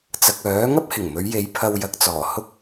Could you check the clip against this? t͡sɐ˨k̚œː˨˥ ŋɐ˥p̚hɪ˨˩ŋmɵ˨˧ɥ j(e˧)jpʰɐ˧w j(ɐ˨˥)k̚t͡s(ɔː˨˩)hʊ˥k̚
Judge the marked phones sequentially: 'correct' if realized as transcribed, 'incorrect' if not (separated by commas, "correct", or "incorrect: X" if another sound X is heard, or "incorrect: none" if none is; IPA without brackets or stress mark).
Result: incorrect: e˨˧, correct, correct